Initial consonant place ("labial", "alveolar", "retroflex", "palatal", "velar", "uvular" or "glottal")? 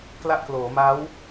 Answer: velar